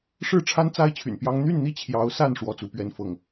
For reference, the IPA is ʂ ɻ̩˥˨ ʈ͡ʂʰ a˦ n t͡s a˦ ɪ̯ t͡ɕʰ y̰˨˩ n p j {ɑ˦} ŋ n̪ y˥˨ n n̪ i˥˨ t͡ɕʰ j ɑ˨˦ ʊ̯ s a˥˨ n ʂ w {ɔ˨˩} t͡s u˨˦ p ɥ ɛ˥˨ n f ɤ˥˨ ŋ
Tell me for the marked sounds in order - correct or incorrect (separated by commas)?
correct, incorrect